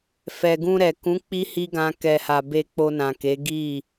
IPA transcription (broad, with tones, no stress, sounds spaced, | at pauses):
f ɛ˨ ɡ ũ˧ ɾ ɛ˨ k ũ˨˦ k͡p i˦ h i˦ ɡ ã˧ k ɛ˨ h a˨ b e˧ k͡p o˧ n ã˨ k e˨˦ ɡ i˦˨